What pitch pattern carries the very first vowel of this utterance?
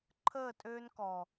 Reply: falling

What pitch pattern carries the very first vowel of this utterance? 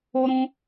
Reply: high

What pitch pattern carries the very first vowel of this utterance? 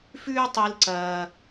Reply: high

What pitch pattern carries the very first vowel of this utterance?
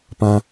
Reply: high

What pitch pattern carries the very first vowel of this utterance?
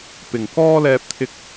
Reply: low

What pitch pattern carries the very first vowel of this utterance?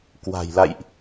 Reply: low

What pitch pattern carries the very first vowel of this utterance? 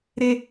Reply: high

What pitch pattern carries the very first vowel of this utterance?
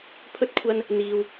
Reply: high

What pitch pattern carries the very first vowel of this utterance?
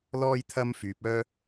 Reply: high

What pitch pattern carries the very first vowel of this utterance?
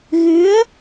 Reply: rising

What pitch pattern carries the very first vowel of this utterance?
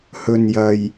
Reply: low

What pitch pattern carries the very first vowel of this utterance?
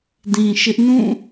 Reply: low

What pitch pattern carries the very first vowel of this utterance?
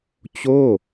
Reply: falling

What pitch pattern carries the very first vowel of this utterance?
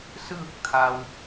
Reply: falling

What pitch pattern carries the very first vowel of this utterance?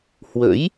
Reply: rising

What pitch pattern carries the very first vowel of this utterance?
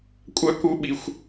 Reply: high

